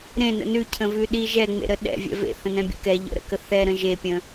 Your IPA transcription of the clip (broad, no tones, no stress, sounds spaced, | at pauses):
ɾ ẽ n ə̰ n ʉ cʰ ə̃ v ʉ ɗ i ʒ ɛ ŋ͡m ḛ ɾ ə ɗ ɛ̰ vʲ ɛ̰ v ḛ θ ə̃ n ɛ̃ bʲ ə̰ k ɛ ʎ ə̰ ɾ ə̰ k ə θ ɛ ɾ ə̃ ʒ e pʲ ə̃